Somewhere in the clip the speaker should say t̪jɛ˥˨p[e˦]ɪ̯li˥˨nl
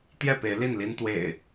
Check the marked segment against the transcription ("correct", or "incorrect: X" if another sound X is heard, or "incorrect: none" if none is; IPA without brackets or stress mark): incorrect: e˨˦